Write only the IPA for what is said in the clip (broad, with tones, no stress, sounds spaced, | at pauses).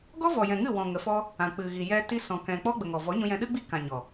ɡ ɔ˦ v ɔ˨ j ɛ̃˨ ŋ ɨ˦˨ w ɔ̃˨ ŋ ə˨˦ f ɔ˦ | ã˨ k͡p ɨ˨ ɣ i˨ j ɛ˧ t i˧ s ɔ̃˨ k ɛ̃˨ k͡p ɔ˦ ɡ͡b ə˨ ŋ ɔ˨ v ɔ˨˦ ɲ ũ˧ j ɛ̃˧ ɗ ɨ˦ ɡ͡b i˦ k ã˨ ɲ ɔ˨